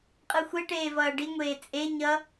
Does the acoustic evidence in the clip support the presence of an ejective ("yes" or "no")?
yes